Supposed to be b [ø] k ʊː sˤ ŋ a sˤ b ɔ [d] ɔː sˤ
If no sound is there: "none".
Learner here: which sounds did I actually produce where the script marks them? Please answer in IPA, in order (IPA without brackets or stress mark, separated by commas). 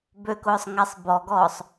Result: ø, ɡ